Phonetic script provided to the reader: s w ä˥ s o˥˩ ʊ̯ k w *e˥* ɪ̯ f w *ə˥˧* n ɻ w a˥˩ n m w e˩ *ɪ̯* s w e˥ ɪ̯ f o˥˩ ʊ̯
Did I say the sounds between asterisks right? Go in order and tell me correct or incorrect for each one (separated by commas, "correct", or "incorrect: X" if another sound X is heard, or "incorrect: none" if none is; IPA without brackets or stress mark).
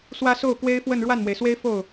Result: correct, correct, correct